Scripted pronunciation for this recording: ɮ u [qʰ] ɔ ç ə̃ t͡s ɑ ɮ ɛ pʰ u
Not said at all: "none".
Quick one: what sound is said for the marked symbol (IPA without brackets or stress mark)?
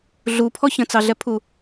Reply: pʰ